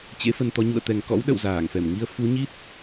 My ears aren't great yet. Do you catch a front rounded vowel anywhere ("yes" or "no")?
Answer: no